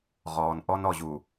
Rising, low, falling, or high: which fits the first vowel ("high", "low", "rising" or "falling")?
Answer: low